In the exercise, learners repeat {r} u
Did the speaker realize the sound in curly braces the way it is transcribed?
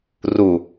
yes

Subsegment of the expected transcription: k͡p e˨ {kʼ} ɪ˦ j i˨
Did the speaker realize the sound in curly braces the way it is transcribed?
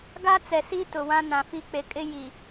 yes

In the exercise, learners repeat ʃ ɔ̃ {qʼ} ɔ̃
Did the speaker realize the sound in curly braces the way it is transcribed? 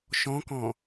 no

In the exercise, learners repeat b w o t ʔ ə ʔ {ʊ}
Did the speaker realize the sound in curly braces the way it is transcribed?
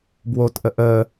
no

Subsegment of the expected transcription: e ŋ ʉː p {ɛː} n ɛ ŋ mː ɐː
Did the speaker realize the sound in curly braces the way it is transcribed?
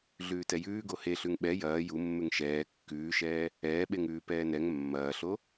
yes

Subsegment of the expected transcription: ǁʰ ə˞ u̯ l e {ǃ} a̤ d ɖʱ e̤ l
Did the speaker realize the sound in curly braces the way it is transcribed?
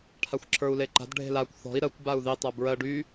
yes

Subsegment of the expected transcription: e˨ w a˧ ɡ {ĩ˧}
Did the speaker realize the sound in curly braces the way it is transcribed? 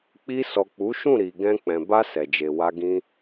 yes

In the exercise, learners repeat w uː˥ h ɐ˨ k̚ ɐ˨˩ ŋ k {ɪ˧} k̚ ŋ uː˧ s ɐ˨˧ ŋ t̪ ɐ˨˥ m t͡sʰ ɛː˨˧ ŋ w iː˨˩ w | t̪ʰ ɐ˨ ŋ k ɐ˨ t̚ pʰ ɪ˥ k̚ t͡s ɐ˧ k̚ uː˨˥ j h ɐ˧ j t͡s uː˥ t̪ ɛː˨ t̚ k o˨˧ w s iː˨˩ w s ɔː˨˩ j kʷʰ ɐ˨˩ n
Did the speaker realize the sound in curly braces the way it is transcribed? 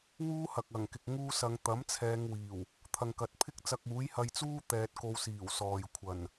no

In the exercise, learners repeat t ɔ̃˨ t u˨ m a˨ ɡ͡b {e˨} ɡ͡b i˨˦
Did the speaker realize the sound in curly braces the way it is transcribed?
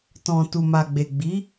yes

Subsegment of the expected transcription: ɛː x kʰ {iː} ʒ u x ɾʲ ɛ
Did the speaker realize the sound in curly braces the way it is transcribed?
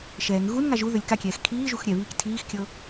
yes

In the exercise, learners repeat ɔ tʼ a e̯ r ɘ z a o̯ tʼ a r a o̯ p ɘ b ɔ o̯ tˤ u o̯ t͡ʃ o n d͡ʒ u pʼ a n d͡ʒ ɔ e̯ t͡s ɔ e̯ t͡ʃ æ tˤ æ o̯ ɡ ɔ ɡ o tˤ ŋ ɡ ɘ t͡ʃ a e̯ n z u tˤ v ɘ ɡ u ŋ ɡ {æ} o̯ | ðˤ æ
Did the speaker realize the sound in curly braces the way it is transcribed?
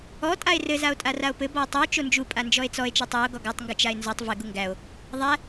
yes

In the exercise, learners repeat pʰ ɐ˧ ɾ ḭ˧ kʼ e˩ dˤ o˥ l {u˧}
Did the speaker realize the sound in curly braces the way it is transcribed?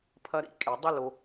no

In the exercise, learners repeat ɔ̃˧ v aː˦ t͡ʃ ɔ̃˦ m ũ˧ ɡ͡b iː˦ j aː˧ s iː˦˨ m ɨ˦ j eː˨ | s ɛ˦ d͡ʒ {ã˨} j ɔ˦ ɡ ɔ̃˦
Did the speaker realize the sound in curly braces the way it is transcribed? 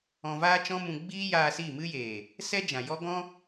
yes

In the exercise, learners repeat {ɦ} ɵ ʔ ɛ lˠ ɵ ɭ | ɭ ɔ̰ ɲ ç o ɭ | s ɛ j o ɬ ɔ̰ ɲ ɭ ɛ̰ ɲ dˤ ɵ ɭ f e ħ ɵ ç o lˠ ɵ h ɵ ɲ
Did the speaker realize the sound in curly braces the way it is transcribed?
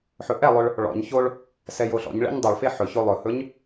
no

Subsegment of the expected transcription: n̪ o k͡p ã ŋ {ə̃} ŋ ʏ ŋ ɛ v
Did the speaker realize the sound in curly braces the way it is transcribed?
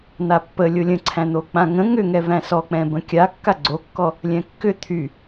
yes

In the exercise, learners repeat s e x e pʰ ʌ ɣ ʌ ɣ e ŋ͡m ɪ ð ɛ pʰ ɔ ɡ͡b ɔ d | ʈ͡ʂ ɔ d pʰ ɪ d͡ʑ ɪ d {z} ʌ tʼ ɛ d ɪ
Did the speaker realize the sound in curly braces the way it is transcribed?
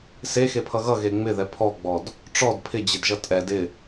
no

